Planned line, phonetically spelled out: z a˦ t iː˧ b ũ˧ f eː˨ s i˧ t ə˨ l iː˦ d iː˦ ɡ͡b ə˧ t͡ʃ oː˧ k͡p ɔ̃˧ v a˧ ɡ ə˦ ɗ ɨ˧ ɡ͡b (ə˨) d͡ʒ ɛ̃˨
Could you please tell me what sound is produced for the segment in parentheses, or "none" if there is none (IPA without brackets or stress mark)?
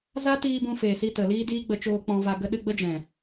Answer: ə˦